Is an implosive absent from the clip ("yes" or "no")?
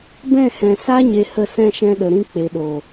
no